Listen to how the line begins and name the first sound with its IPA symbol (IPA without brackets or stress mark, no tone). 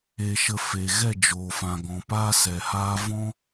e